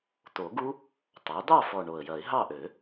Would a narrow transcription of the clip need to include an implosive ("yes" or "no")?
no